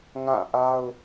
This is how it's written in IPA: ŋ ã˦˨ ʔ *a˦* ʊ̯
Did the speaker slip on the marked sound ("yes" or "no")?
no